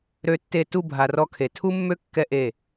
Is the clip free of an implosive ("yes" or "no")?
yes